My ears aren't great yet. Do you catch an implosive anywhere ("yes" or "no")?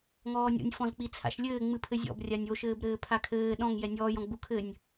yes